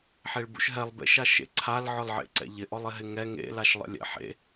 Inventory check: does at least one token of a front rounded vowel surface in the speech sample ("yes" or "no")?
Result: no